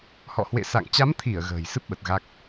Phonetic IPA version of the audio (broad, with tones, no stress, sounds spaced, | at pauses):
h ɔ̰˧˨ h w ḛ˧˨ s a̰˧˨ ŋ t͡ɕ a˨˦ m t̪ʰ i˧˩ ə̯ ɣ ə̤ː˨˩ j s ɨ˦˥ p̚ ɓ ə˨˩ t̚ ɣ a˦˥ k̚